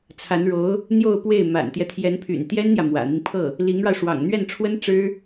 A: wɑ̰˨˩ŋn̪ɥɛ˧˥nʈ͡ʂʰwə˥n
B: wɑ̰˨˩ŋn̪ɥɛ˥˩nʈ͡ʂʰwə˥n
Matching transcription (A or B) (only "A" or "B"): B